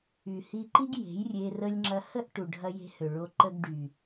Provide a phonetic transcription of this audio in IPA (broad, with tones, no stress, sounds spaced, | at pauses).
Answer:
y˨ h i˧ ǃ i˦ ɡ j e̤˨˦ j rʲ e˧ r ə˧ lʲ ŋ͡ǁ ɐ˧ h ə˦ ʔ ʈ u˨ ɖʱ ɐ˧ j e̤˧ h ø˨ ɭ o˧ ǃ ə˧ ɡ ɖ y˨